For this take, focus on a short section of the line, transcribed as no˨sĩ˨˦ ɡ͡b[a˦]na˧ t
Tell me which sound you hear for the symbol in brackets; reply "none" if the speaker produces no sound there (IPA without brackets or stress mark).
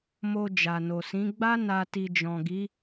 a˦